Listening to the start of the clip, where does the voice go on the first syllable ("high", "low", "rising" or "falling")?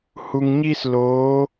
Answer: low